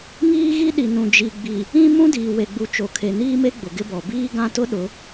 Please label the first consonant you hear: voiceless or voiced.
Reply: voiced